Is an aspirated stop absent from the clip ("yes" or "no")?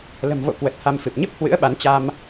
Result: yes